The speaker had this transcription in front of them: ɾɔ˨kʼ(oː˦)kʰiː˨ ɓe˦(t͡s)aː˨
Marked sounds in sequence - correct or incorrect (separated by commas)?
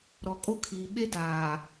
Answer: incorrect, incorrect